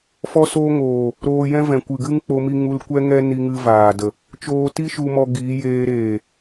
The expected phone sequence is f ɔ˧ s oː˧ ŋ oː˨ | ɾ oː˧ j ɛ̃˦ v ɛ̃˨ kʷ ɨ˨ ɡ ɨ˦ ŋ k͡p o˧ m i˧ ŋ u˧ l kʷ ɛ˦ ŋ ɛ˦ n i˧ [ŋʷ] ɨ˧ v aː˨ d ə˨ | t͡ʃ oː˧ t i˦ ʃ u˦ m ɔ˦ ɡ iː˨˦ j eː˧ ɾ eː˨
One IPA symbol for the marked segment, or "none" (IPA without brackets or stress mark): ŋ